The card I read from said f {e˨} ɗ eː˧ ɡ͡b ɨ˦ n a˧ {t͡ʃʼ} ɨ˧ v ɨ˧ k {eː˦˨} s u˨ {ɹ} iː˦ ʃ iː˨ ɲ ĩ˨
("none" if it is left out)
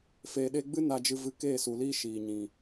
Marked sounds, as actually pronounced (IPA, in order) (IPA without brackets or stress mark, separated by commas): eː˨, d͡ʒ, eː˦˨, l